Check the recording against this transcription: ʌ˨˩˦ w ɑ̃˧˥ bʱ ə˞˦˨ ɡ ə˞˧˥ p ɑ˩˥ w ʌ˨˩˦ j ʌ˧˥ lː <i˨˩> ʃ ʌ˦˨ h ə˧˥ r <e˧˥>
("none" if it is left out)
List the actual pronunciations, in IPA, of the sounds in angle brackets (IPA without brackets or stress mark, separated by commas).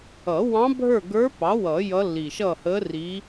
i˨˩, i˧˥